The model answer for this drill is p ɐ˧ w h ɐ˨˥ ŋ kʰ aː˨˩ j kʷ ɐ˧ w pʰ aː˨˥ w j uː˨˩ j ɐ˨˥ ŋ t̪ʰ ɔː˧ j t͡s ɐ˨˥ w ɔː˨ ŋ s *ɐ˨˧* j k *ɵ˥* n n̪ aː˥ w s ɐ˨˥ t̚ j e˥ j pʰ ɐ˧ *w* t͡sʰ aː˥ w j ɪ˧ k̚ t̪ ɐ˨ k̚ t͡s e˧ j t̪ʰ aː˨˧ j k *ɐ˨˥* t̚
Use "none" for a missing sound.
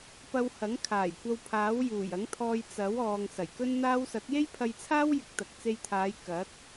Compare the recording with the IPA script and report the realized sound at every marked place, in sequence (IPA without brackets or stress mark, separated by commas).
ɐ˨˩, ɵ˥, j, ɐ˨˥